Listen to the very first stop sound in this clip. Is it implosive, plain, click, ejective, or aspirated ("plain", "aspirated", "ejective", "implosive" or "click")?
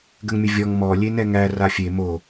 plain